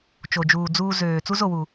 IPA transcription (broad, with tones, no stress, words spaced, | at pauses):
t͡ʃo˨d͡ʒuː˨d͡zuː˧zøː˨ t͡su˦zo˨wu˨